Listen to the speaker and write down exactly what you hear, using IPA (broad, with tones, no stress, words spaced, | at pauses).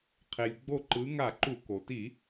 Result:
qʰe˩lʲɡ͡bo˧˩ǃɯ˩˧ŋa˧˩˧ ǃu˧˩˧ ko˩ti˧˩˧